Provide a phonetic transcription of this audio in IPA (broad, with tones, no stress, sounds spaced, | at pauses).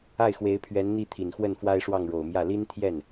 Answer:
a˥˩ ɪ̯ x w e˧˥ ɪ̯ pʰ ɥ ɛ˧˥ n n̪ i˥˩ t̪ʰ i˨˩ n x w ə˥˩ n f w a˥ ɪ̯ ʂ w ɑ˥˩ ŋ ɻ o˨˩ ʊ̯ m j ä˥˩ l i˥ n t̪ʰ j ɛ˥˩ n